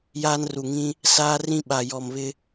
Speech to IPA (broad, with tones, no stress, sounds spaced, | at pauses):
j aː˦ n r u˨ ŋ ĩ˦ | s aː˦ r ĩ˦ ɓ a˨ j ɔ˨ m β ɪ˦